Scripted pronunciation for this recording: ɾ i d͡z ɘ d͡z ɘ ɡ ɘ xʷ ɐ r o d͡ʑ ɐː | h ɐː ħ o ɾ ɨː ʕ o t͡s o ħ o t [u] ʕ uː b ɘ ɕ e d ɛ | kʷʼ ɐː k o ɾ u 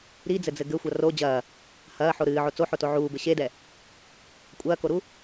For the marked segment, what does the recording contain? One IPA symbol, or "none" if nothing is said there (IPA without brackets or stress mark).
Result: o